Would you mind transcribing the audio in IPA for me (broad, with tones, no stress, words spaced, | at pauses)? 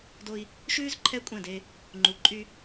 do˦i̯ | ʃʉː˦z ǃʰɛ˦kʷʼɛ̃˦˨de˦ | ŋ͡ǃu˨ǃʼy˦